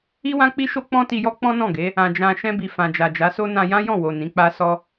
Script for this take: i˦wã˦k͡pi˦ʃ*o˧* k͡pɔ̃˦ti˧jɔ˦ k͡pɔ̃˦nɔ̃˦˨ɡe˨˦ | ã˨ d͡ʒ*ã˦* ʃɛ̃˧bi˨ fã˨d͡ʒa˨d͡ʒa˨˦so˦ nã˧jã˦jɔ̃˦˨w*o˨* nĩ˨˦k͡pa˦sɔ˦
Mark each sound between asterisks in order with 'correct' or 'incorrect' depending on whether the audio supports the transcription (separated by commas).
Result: incorrect, incorrect, correct